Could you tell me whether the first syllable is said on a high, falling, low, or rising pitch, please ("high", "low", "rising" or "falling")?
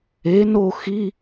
rising